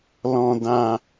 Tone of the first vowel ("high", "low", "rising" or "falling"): low